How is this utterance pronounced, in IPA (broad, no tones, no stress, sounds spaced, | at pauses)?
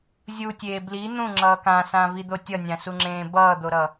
zʲ u tʲ eː b l i n̪ ũ ŋ͡ǁ ʌː k ã s ã v i d̪ o tʲ ʌ nʲ ã s u ŋ͡ǁ ẽː b ʌː d̪ o ɾ ʌː